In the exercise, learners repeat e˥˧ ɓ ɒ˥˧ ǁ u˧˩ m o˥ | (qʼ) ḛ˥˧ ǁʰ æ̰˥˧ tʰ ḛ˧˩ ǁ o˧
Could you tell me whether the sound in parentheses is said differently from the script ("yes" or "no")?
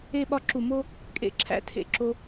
yes